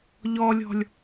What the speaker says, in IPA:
ʎ ɔ lʲ ɔ̤ lʲ

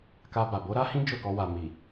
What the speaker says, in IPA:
k a˧ b a˨ b o˨˦ ɾ a˦ h ĩ˦ d͡ʒ o˦˨ k ɔ˧ w a˨ m i˨

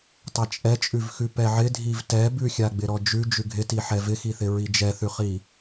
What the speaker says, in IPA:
tˤ ɛ t͡ʃʼ ɛ t͡ʃʼ ʉ v x ʉ p ɛ ʕ ɪ dʱ i v t ɛ b ʉ xʲ a ɡ͡b ɪ ɾ ɔ d͡ʒ ʉ d͡ʒ ʉ ɡʱ ɪ t i ħ ɛ v ɪ x i θ ɪ ɹ i d͡ʒ ɛ θ ʉ χ i

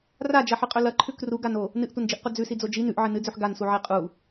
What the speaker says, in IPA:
r a d͡ʒ ɐ ħ ɨ qʼ ɵ l ɐ ǃʰ ʉ k r u ɡ a n o | n ɨ ʔ tʷ ɐ n d͡ʒ i ʔ qʷ ɐ d͡z ʉ s i d͡z o d͡ʒ i n ʉ ʔ ʕ ɨ n ɨ d͡z ʉ ħ ɡ a n s u ʕ e qʼ u

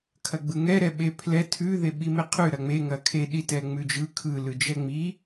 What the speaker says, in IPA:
kʰ ɐ ɡ͡b ɯ ŋ ɛ ɾ ɛ ɓ e pʰ l ɛ tʰ ʉ ð e ɓ i m e qʰ ʉ ɾ ɐ ŋ͡m e ŋ ɐ kʰ e ɗ i t ɛ ŋ͡m ʉ d͡ʒ ɯ kʰ ɯ l ɯ d͡ʒ ɛ ŋ͡m i

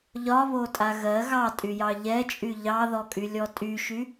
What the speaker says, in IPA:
ʎ ɒ β o tʼ a ɣ ɜ ɣ ɑ tʼ y j ɑ ʎ ɛ t͡ʃʼ y ʎ ɑ ð ɔ kʼ y lʲ ɔ tʼ y ʃ y

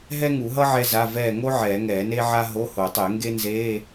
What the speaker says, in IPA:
ɦ ɛ˥ ŋ u˨˩˦ ɦ ʌ˥ ʕ ɛ˥ z a˧˥˧ v ɛː˦˨ ŋ o˥ ʕ ɛː˨˩˦ ŋ ɛː˨˩˦ n e˥ ʕ a˥ ɦ o˧˥˧ h o˨˩˦ tˤ e˨˩˦ ŋ ɡ e˥ n z eː˧˥˧

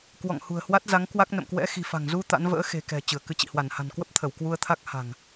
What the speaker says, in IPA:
k w ɔ̰˧˨ ŋ h ṳ˨˩ ə̯ h w a˦˥ t̚ z a˨˦ ŋ k w a˦˥ k̚ n ə̰˧˨ m k w ɛ̰˧˥ x i̤˨˩ f a̤˨˩ ŋ z u˧ t̪ a̰˧˥ n v ə̰ː˧˥ x e̤˨˩ k ɛ̤˨˩ t͡ɕ ɨ˧˩ ə̯ k ɨ˧ t͡ɕ ḭ˧˨ h w a˧˩ n h a̤˨˩ n k w ə˦˥ p̚ t̪ʰ ə˧˩ w k w u˧ ə̯ t̪ʰ a˦˥ k̚ h a̤˨˩ ŋ

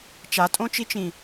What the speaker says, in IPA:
t͡ʃ a tʼ õ t͡ʃ i t͡ʃ ĩ

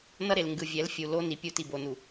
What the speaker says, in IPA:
n ʌ˦ ɾ e˨ l ŋ ɡ ɯ˨ vʲ ɛ˨˦ l fʲ u˨ l o˦ n i˨ pʲ u˦ t i˨ b o˨ n u˨

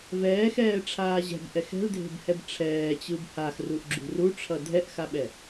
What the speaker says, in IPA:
v ɛː x ɛː ʈ͡ʂʰ aː ʑ ɛ̤ b ʔ ɛ x ɛ̤ l dʱ e̤ b h ɛ b ʈ͡ʂʰ ɛː t͡ɕ ɯ b h a x r u ʔ ɡ͡ǁ ṳ r u ʈ͡ʂʰ ʌ dʱ ɛ ʔ x a ɓ ɛ

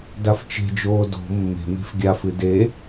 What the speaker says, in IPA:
d a f t͡ʃ e̤ d͡ʒ oː d o̤ mː e̤ m e̤ f ɡʲ a f ɨ d e

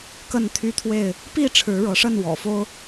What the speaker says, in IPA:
k ə˥˨ n t̪ʰ y˦ t̪ʰ w e˥˨ ɪ̯ | p i˥˨ ʈ͡ʂʰ ɻ̩˨˦ ɻ ɤ˨˦ ʂ ə˥˨ n w ɔ̰˨˩ f o˦ ʊ̯

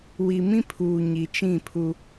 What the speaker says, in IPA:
w i˨ m ĩ˦ pʰ uː˨ ɲ i˨ t͡ʃ ĩ˦˨ pʰ u˦

